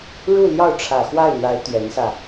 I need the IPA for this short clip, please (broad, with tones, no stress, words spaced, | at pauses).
ɻu˥˧ ljɑ˥˩ʊ̯ʈ͡ʂʰä˨˩xwa˥˩ɪ̯n̪a˧˥ɪ̯ t̪ɥɛ˧˥nsä˧